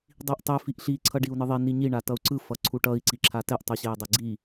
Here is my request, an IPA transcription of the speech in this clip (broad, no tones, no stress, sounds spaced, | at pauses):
dˤ i ʔ tˤ e f i ʔ ɬ i ǀʰ ʌ ɖ i u̯ n ɯ ðˤ i n i ɲ i ɳ a t ʌ u̯ ǀ ɯ f ʌ ǀʰ u ʈ ʌ i̯ ǀ i ǁʰ a t ɛ ʔ tˤ u ɕ e i̯ dˤ e ɡ͡ǀ i